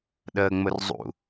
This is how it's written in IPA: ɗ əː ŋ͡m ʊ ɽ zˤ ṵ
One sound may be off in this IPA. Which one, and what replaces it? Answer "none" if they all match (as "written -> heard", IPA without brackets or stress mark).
ɽ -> r